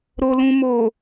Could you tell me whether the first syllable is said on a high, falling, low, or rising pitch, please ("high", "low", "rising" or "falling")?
low